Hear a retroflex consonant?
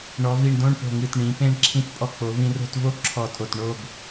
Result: yes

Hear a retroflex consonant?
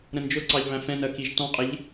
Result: no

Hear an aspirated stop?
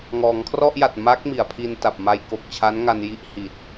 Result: yes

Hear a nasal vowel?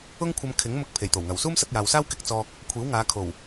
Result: no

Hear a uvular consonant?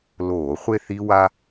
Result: yes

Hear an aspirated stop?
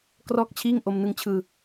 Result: yes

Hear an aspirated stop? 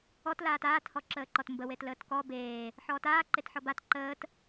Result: no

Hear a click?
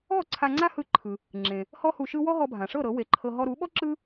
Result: yes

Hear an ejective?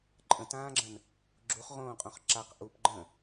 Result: yes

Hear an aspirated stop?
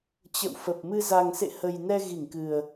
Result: no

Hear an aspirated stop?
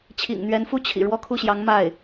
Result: yes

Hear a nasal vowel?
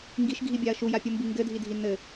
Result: no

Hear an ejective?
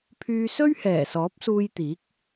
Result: no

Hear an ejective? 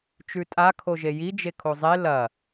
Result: yes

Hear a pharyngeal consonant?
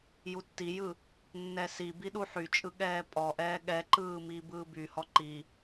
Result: yes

